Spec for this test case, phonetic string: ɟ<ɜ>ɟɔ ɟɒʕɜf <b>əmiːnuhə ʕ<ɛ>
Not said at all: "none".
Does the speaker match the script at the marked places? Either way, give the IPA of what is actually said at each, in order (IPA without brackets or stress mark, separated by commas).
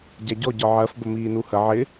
æ, b, ɪ